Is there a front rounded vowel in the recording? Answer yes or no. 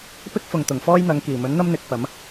no